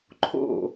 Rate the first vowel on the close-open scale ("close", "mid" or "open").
mid